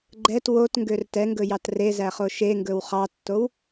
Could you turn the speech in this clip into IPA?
ɡ͡ǃɛt wotŋɡør tɛŋɡɵjɑt rezæχo ʃeŋɡɵw χɑtːow

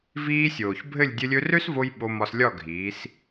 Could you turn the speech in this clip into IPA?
viː˧sʲoː˨çbʱɘ˦˨lʲ dʲɘ˧lʲɵ˧rø˦svo˧j ɓo˧mɒ˧slʲɒ˦˨ ɡʱiː˨˦s

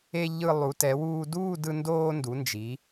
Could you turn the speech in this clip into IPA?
e˧ ʎɯ˧ lˠu˩˧tɛ˩˧wuː˧duː˥˧ dɯ˧ndoː˧ndu˩˧nd͡ʒi˩˧

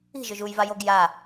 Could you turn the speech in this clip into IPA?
i̤ʒɵʒ uj vajoɡ ja

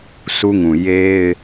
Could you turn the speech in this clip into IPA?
su˦ŋũ˨ je˦ɪ̯

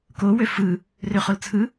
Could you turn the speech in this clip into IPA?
kowø fɯ | røχolt͡sʰɯ

